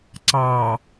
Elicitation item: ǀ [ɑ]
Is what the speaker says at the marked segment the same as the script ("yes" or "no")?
yes